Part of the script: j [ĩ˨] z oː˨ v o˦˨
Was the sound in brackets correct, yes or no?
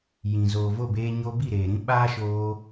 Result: yes